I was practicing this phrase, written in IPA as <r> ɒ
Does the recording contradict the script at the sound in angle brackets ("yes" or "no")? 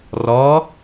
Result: no